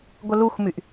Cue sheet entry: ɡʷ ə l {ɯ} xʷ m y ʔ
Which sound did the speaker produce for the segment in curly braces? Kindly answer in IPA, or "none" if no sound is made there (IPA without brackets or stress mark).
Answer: u